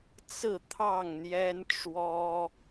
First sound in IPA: t͡s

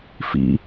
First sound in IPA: f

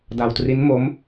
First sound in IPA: d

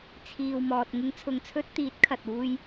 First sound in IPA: t͡sʰ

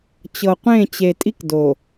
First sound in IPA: t͡ɕ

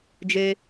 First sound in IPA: d͡ʒ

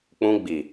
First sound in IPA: k͡p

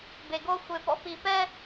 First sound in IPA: b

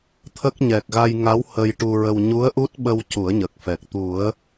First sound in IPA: t̪ʰ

